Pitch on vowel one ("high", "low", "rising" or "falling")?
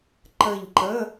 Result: falling